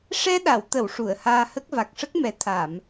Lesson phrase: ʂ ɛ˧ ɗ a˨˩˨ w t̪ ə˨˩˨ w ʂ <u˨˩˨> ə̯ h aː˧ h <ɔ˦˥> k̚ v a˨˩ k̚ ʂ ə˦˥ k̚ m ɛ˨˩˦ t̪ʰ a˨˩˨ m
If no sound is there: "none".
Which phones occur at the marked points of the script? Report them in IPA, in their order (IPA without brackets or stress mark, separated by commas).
u˨˩˨, ə˦˥